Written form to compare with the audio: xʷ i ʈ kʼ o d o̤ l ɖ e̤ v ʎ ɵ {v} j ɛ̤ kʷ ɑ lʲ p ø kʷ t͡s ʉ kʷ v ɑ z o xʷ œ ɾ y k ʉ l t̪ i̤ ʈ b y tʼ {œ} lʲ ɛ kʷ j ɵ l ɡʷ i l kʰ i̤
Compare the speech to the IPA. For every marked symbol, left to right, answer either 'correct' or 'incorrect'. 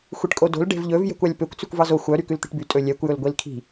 correct, incorrect

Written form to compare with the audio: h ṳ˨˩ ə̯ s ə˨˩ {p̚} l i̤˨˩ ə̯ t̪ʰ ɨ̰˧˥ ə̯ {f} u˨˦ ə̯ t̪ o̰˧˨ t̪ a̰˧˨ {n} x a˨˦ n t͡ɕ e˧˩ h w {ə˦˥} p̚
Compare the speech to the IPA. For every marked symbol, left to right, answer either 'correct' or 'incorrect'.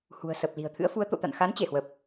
correct, correct, correct, incorrect

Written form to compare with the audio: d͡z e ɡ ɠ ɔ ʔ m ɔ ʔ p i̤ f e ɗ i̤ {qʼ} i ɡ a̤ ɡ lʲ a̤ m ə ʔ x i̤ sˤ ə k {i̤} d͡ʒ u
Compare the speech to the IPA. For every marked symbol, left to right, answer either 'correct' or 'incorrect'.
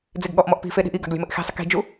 incorrect, correct

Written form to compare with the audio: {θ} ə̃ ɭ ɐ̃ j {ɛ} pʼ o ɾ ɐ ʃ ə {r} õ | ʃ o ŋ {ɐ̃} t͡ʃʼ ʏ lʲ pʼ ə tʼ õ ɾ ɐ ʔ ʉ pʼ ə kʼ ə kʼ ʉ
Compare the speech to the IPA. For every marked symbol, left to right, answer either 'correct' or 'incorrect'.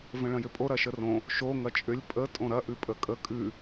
incorrect, incorrect, correct, incorrect

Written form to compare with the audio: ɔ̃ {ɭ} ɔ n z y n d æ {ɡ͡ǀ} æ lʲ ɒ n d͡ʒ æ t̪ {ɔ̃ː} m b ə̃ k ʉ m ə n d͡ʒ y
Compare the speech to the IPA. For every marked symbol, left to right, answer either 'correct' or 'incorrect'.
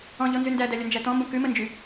incorrect, incorrect, incorrect

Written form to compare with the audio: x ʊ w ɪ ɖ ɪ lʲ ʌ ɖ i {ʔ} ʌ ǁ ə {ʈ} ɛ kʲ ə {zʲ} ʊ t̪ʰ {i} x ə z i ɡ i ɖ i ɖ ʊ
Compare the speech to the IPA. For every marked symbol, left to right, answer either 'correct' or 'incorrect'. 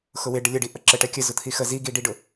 correct, correct, incorrect, correct

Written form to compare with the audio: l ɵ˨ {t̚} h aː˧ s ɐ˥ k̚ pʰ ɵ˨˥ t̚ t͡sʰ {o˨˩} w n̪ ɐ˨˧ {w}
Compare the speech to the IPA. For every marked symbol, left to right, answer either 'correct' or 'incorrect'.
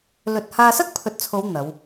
correct, incorrect, correct

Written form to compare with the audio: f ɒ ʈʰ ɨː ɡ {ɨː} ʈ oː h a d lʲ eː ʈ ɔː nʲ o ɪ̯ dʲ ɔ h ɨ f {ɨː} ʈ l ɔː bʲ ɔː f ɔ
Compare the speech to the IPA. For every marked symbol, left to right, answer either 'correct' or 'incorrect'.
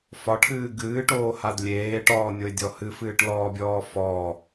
correct, correct

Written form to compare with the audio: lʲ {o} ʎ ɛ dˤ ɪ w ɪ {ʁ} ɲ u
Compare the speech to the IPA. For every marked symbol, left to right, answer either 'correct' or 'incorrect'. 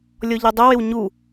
incorrect, incorrect

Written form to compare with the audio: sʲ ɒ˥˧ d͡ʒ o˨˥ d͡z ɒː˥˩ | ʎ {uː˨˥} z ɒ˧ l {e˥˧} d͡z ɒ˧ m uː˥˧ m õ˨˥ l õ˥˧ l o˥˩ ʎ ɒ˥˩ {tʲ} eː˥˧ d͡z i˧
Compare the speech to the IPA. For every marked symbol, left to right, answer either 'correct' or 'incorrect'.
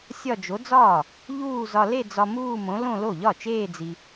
incorrect, correct, incorrect

